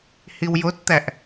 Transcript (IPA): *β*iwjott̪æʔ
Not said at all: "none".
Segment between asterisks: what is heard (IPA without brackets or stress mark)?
h